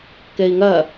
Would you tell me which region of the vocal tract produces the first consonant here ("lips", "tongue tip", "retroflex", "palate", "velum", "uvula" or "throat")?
velum